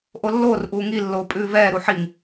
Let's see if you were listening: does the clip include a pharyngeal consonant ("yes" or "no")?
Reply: yes